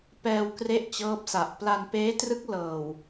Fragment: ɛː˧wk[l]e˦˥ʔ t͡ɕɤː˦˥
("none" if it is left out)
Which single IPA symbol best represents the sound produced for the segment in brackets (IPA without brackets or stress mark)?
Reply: r